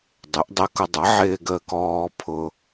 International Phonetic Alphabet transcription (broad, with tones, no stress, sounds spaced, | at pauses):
dˤ ɪ˩˥ ʔ dˤ ɛ˧ k ʊ˧ dˤ ʌ˩˥ ʕ ɪː˧ ɡ əː˧ k ɔː˧ pʰ ʊ˧